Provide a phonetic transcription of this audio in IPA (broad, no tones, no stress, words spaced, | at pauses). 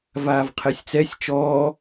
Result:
vaːvqʰɛsʲt͡sɛsʲ t͡ʃɔː